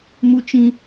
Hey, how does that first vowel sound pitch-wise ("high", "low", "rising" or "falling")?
high